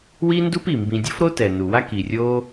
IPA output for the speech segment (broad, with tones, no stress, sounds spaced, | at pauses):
w i˦ n d u˦ p i˨ m b ĩ˧ dʲ o˦ f ɾ o˦ t ɛ˨ n u˨ w a˦ k i˨ rʲ o˦